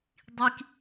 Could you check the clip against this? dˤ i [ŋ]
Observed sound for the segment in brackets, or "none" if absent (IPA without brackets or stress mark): k